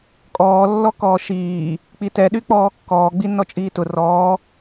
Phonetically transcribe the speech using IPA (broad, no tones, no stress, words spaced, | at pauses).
kʼɔːlːɔkɔː ʃiː | k͡pitɛɗy k͡pɔːkːɔː ɡ͡binːɔt͡ʃʼiːtʊ rɔː